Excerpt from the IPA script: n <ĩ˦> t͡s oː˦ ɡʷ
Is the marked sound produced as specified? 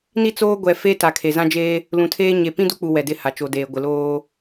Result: no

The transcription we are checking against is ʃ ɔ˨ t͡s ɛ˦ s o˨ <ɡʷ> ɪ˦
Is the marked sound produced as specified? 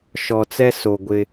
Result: yes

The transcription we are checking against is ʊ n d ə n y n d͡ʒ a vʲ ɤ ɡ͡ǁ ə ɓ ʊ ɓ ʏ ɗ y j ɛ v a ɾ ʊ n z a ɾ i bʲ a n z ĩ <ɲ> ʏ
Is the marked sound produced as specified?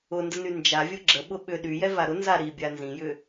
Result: no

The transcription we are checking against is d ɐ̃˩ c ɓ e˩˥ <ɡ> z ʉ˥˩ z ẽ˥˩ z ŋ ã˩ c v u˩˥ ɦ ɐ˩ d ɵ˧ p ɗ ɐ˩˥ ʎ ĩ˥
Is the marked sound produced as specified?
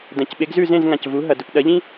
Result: yes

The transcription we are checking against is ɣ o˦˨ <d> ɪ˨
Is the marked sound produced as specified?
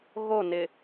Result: no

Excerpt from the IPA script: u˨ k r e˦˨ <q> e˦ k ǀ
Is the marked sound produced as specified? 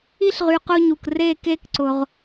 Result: no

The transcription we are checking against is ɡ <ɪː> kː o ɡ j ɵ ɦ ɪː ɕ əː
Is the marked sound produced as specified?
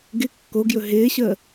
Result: no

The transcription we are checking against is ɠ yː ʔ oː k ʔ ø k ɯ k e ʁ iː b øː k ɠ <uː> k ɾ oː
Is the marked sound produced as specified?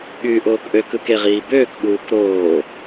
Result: yes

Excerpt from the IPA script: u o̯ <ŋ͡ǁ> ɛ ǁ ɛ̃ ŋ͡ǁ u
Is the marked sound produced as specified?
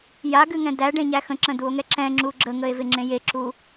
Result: no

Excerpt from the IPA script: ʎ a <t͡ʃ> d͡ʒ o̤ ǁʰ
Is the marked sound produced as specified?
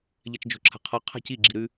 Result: yes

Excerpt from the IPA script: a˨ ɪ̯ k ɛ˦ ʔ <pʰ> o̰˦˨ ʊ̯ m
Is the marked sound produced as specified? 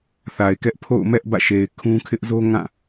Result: yes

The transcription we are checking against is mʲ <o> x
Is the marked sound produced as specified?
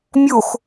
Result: yes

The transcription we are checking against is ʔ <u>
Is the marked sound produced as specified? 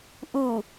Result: yes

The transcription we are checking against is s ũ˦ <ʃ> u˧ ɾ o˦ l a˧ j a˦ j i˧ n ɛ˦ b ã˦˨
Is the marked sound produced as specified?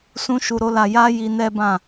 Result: yes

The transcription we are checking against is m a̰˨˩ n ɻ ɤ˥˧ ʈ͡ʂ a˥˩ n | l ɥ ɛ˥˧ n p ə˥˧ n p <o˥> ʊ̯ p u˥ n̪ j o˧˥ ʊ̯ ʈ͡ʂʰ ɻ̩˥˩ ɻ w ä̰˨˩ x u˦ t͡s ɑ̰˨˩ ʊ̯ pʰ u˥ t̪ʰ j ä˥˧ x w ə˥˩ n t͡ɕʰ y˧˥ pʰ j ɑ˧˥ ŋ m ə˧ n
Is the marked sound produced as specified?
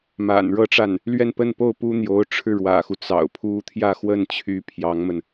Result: no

